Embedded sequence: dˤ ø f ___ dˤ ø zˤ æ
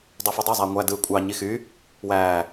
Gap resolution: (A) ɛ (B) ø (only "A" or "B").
B